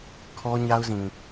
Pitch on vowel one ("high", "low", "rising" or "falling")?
high